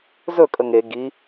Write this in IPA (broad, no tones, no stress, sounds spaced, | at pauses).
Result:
z ɵ kʼ ə ŋ e ɡ i